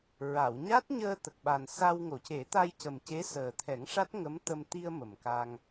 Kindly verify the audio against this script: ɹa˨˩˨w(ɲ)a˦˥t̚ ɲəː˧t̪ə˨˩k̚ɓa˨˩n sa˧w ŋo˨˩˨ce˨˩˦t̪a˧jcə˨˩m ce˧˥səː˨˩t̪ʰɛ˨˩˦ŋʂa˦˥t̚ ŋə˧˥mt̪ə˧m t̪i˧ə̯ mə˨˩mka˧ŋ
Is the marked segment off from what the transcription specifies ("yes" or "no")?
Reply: no